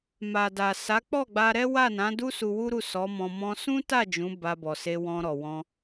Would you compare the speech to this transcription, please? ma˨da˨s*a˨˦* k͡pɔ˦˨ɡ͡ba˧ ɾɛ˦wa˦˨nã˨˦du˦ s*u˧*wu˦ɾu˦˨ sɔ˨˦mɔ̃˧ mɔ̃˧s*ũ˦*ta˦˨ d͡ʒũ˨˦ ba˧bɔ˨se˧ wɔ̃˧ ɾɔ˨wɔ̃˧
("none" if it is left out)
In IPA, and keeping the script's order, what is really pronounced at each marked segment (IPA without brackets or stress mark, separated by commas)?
a˨˦, u˧, ũ˦